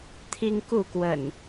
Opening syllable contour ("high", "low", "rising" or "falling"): high